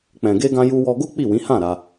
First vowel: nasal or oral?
nasal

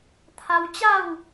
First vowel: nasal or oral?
oral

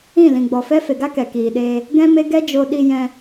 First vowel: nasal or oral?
nasal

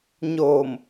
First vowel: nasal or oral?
oral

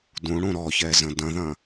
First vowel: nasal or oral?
nasal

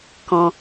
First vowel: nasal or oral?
nasal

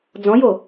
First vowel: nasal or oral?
nasal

